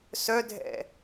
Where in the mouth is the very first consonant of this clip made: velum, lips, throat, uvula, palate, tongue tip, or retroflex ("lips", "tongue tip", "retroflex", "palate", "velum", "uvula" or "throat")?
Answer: tongue tip